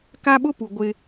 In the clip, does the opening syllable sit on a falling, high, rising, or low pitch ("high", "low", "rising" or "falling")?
high